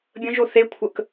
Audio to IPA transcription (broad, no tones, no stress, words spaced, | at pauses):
bʲə̃ʒo θekʷʰək